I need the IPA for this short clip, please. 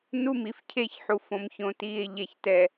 nu˦mi˨fcʰe˦˨çħu˨ fõ˨mçõ˨tiː˨e̯ ʎɛ˨çtɛ˨

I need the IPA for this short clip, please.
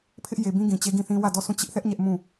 pʰɪ˦ʔ je˨bĩ˦ ɡĩ˨t͡ɕe˦ɡĩ˦˨θĩ˦ wä˦˨dɔ˦˨sũ˦˨ t͡ɕɪ˦ʔθɛ˦ʔ ɲɛ˦ʔ mũ˦˨

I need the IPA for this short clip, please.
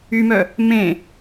ymœ | mẽ

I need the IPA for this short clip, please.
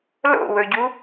lo̰wɵɟu

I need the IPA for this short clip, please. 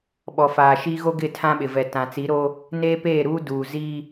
ɓɔ˨ faː˨ʃi˦ ɣo˦ɡɪ˦˨ tʰã˦ɓɪ˨ vɛ˨tã˨ t͡si˨˦ɾo˦ | neː˦peː˦˨ɾuː˦ duː˨ziː˦

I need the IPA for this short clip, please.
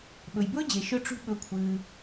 ɓɵ˩jbɵː˥d͡ʑe˩ ʃʊ˦ ʈ͡ʂṳ˦ ɓɵ˨kʷʰɨː˩

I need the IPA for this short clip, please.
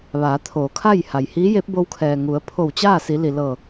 ʋaː˩˧t̪ʰoː˩˧kʰa˥˨j ha˩jhiː˧˥je˧˥p̚ bo˧wkʰɛː˩ ŋu˩˧ə̯pʰo˧˩wt͡ɕaː˥˨si˩˧ li˩lɤː˧˩

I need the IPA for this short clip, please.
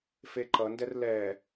feǃʌndɛr lɛ

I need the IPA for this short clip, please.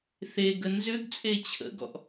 θeɡə nzʏɡt͡sʼe t͡ɕʰə̰ɡɔ̰ʔ

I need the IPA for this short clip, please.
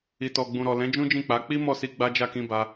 i˨tɔ˨ɡ͡bũ˨ɾɔ˨ lɛ̃˨˦d͡ʒũ˦d͡ʒĩ˦˨k͡pa˨˦ k͡pi˦ mɔ˦˨si˧ ɡ͡ba˦d͡ʒa˦˨kĩ˧ ba˧

